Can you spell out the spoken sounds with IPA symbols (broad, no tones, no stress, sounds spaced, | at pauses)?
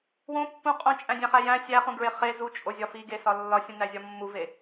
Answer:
w õ pː ũ qʼ õ t͡ʃʼ æ̃ dʲ æ̃ χ æ j æ̃ sʲ æ χ ũ ɡ ɹ e χ e z u t͡ʃʼ o zʲ ɒ f i ɡ e s ɒ lː ɒ sʲ ũ n æ zʲ ɒ mː u v e